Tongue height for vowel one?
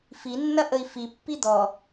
high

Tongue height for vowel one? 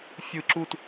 high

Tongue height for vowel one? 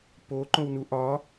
mid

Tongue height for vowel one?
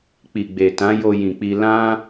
high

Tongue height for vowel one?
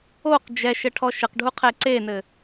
mid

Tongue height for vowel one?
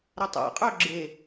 low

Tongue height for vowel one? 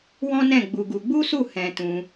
mid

